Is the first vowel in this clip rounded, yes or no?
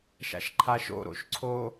no